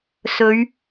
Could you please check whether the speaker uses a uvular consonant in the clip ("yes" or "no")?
no